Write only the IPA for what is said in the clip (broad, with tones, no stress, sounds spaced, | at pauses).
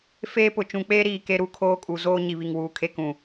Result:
f eː˦ p ʊ˨ t͡ʃ ũ˨ k͡p eː˦ ɾ iː˨ k e˦ ɾ u˦ kʰ oː˦ kʼ u˨ z oː˦ ɲ i˨ β i˨ ŋ w uː˨ kʰ e˦ k ũ˨